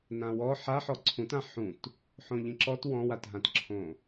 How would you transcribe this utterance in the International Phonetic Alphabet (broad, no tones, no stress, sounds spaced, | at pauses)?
n ã w ɔ ħ a ħ ɔ ǀʰ ũ t ã ħ ũ t | ħ õ ʎ ĩ ǁ ɔ t w ɔ̃ w a t ɦ ã t ǁʰ õ